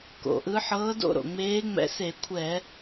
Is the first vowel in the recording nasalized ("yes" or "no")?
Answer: no